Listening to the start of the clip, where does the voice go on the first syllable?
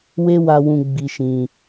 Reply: high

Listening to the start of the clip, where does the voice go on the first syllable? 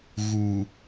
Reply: low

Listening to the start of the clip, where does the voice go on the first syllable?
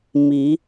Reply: rising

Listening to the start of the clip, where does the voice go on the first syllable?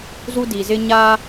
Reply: high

